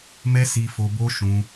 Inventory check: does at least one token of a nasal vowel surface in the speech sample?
yes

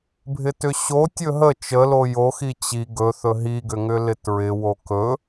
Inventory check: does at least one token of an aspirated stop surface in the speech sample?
no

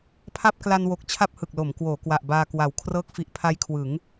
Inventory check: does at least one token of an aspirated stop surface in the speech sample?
yes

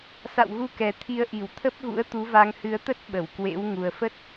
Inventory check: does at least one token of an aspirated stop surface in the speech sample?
yes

